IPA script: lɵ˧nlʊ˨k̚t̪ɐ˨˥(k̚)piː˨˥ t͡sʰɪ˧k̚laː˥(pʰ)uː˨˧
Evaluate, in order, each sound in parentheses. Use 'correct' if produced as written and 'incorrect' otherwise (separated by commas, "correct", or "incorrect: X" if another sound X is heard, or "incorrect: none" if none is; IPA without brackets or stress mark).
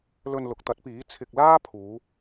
incorrect: t̚, correct